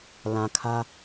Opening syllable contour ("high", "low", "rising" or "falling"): low